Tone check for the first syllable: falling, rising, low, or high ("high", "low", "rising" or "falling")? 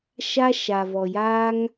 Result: high